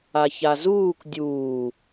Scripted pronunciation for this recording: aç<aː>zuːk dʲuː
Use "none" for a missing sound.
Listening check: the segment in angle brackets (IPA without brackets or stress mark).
a